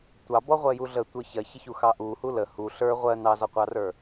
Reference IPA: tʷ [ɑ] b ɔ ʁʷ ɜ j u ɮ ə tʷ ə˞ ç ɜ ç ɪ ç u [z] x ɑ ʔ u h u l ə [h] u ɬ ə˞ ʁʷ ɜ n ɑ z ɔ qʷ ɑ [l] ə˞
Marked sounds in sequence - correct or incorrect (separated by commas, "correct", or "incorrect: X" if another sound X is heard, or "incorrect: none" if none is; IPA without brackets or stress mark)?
correct, incorrect: none, correct, incorrect: r